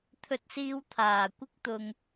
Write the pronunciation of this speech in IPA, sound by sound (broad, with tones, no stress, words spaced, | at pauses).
t̪ʰɵ˧t̚siː˧wt̪ʰaː˨ kʷɪ˥k̚t̪ʊ˧ŋ